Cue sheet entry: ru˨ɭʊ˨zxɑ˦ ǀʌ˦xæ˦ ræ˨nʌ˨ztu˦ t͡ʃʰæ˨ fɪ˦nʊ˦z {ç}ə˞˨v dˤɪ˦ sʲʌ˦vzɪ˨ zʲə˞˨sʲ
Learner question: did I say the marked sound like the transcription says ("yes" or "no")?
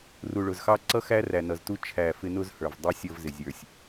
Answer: no